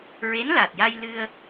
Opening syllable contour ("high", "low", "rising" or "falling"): rising